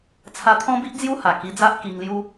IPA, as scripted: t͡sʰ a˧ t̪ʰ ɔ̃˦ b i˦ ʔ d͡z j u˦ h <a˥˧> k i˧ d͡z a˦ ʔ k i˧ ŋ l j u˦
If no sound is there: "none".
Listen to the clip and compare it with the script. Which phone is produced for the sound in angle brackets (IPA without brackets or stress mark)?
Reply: a˨˩